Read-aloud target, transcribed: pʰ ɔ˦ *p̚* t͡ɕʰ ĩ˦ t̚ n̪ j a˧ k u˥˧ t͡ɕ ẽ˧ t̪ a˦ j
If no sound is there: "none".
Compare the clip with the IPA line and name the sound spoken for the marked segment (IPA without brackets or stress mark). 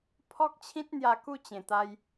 k̚